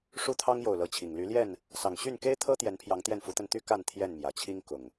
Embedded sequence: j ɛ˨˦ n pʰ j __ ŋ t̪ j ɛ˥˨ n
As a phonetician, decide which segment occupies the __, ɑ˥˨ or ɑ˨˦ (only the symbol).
ɑ˨˦